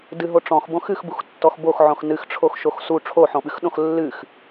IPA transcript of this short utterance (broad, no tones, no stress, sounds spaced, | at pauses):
d ɨ ɦ o ʈ͡ʂ ɔ̃ x b õ x ɨ x b u x tː ɔ x b o x ʕ õ x n ɨ x ʈ͡ʂʰ o x ʃ o x s u ʈ͡ʂʰ o ħ õ ɓ ɨ x ɗ õ x lː ɨ x